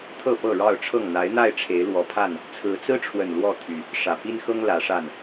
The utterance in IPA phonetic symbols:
t̪ʰɤ˥˨pɤ˥˨ɻɑ˥˨ʊ̯ʈ͡ʂʰɤ˥˨ŋ n̪a˨˦ɪ̯n̪a˥˨ɪ̯ ʈ͡ʂʰe˨˦ɪ̯lwɔ˨˦pʰa˥˨n | t͡sʰɹ̩˨˦t͡sɹ̩˦ʈ͡ʂʰwə˨˩n lwɔ˥˨t̪ʰy˨˩ | ʂä˨˩pi˦nxɤ˦ŋ lä˨˦ʂa˥˨n

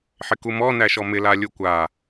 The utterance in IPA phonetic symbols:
ħɪkumɔ næʃɔmɪ lalʲukʷa

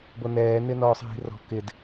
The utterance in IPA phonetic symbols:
bonɛː nɪnɔːsˤɦi̤rɔ̤ kɪd

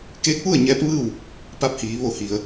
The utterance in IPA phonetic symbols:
keː˧˥k̚ʋu˥˨ə̯ ɲɛː˧˥p̚ʋɯː˥˨w | pa˧p̚hiː˩˧ ʋo˧˩hi˩ə̯

